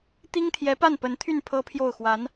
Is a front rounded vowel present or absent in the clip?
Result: present